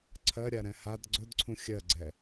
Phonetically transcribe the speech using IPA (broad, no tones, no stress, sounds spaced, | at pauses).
ǀʰ ɜ ɾʲ a ɾ ɛ̃ h a d ɡ͡ǀ ɵ d ǀʰ ũ xʲ ɜ ɡ͡ǀ ɛ